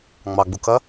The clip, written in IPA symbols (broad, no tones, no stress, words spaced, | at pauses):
ŋ͡mɑɡ͡bukɐ